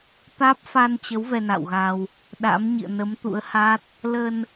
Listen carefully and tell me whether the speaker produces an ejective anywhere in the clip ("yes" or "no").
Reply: no